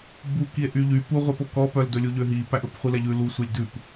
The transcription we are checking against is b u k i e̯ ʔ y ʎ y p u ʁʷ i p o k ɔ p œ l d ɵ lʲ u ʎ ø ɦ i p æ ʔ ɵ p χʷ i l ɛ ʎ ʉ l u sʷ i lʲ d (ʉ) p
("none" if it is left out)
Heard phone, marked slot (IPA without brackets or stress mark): ʉ